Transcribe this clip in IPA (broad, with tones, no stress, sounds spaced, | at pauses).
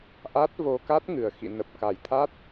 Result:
ʔ a˦˥ t̚ v o˧ k a˦˥ t̚ ŋ ɨ˨˩ ə̯ x ḭ˧˨ n ə˨˩ p̚ k a˨˩ j t̪ʰ a˦˥ t̚